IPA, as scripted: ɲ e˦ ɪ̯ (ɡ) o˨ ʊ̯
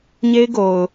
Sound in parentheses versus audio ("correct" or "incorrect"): correct